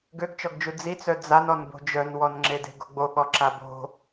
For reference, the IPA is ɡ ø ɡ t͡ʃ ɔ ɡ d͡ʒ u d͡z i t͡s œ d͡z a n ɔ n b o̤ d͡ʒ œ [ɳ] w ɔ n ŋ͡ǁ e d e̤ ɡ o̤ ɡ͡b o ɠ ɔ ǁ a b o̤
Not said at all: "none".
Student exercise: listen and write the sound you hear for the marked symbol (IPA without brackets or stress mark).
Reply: n